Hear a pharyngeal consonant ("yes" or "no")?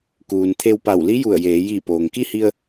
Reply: no